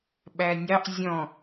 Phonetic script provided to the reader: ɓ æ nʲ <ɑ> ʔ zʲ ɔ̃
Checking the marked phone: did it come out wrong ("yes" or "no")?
no